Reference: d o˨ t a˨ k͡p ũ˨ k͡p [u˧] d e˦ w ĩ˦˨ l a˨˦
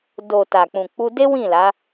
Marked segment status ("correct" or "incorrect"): correct